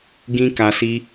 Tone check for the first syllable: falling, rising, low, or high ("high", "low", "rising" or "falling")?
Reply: high